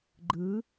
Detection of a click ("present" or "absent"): present